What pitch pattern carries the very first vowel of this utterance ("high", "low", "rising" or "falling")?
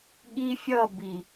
high